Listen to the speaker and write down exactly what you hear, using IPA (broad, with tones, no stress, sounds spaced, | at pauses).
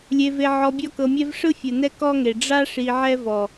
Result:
lʲ e˧ v e˧ ʕ ɔ˧ bʲ ɔ˦ k ɤ˧ mʲ ɛ˦ v ʂ ɯ˦ fʲ ɯ˨ n ɛ˦ k ɔ˦ ŋ e˨ ɖ͡ʐ a˦ ʂ i˧ ʕ ɛ˦ v ɔ˨